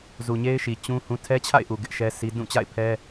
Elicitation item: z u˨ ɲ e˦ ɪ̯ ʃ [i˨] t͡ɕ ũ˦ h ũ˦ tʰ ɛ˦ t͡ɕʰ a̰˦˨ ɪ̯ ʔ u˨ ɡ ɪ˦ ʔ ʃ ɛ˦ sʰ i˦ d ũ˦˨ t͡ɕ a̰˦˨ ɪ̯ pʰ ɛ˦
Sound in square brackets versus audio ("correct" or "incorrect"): correct